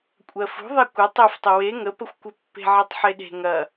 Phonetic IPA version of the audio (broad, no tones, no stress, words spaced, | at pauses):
kʷʼɜfṳ ðˤekʷə tˤeftˤɘ we ŋəpəxʷkʷɘpːe̤ ʕɘtˤħeɗe̤ ŋɐ